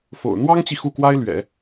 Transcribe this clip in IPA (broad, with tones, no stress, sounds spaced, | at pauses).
f o̰˨˩ ʊ̯ n̪ w ɑ˥ ŋ t͡ɕ i˨ x u˥˩ k w a˥ ɪ̯ l ɥ ɛ̰˨˩˦